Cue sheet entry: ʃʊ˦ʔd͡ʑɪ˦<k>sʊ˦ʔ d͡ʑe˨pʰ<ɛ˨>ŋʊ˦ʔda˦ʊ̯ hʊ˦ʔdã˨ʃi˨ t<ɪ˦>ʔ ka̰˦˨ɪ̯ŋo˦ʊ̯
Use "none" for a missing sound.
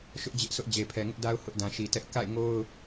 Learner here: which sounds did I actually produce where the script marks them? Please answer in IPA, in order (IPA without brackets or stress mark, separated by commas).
ʔ, ɛ˨, ɛ˦